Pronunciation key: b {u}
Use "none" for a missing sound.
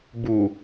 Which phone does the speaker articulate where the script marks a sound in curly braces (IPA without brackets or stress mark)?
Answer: u